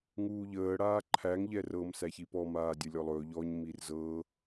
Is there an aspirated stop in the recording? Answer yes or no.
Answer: yes